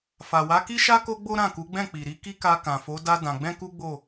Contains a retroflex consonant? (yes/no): no